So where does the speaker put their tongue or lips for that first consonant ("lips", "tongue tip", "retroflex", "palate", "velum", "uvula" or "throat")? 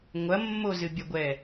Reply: velum